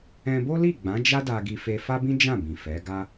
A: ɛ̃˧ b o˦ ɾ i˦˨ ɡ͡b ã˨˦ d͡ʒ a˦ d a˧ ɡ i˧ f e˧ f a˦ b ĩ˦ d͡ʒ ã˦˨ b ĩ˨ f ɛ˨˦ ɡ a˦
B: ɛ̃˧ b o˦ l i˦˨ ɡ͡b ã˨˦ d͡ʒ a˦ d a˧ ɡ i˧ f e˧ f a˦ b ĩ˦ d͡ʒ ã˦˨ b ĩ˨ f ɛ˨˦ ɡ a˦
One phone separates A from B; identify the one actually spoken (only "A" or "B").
B